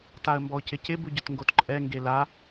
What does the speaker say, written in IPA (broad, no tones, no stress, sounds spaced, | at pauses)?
t a ə̯ m b ɔ ʊ̯ c ɪ c ɪ b u ɟ ʊ t ŋ ɡ o t ǃʼ ɛ ŋ ɡ e l a